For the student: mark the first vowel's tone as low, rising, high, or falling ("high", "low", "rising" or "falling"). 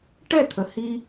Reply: falling